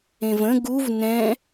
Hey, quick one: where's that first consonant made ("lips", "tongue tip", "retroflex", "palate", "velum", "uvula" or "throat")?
lips